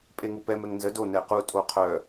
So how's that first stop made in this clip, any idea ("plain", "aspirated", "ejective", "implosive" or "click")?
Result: ejective